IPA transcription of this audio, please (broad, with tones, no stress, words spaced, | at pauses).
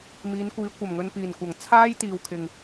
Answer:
miː˨˧nkʷiː˨˧ kʷɐ˨˩mŋɵ˨npiː˨˩nkʷɐ˨˩ŋ t͡sʰaː˧jt̪iː˨w kʰɪ˨ŋ